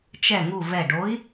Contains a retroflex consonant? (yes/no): yes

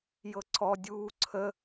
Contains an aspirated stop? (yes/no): yes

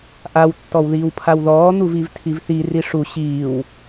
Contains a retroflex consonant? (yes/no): yes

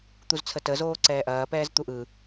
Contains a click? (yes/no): yes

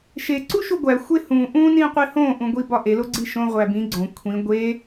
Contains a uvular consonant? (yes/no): yes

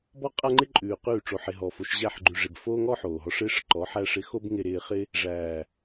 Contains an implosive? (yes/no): no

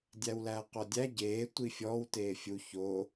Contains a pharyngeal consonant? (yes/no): no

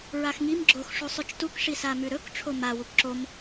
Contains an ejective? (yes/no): no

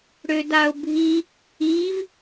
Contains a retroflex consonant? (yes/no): yes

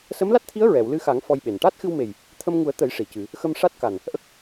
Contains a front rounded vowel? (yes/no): no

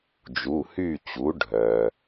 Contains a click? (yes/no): no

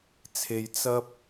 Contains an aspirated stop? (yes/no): yes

